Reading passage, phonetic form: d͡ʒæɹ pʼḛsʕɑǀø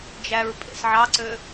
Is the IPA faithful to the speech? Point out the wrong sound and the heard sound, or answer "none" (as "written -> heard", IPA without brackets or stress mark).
none